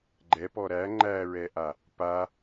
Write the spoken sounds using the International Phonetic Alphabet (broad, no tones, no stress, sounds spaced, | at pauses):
ɡ͡ǃ ɛ p ɔ ɾ æ ŋ͡ǃ æ ɹ ɛ ʔ a | p a